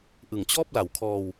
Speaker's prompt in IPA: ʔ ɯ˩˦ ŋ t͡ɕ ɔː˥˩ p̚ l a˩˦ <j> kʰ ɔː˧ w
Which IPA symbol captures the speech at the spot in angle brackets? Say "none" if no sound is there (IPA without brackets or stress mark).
w